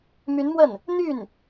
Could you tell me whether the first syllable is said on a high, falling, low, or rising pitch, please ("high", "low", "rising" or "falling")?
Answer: rising